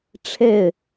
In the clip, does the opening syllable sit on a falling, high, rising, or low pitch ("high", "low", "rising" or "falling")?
falling